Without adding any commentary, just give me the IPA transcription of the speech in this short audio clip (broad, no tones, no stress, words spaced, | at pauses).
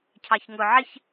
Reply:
cʰɑçŋʊ ʕɪç